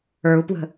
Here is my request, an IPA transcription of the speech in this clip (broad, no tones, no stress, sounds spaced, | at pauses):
ə˞ u̯ p w ə̤